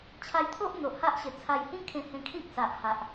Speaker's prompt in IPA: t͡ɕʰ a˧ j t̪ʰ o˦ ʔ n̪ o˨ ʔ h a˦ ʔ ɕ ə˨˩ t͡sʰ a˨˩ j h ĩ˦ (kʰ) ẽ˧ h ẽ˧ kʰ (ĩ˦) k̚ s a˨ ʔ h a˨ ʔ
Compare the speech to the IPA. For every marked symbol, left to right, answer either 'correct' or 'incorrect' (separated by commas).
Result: correct, correct